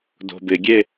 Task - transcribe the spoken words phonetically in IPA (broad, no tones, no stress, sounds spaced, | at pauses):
d o̤ b ɪ ɡʲ e